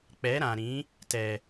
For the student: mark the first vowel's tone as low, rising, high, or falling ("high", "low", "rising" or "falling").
rising